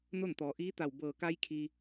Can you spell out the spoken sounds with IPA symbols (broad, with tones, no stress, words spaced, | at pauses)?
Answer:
no˥˨nt̪ɔː˩˧ ʔiː˧˥ t̪a˧˩wbɤː˧˩ ka˧j kʰi˧